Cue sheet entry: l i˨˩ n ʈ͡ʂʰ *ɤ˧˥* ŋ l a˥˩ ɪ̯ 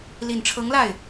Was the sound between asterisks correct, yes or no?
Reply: yes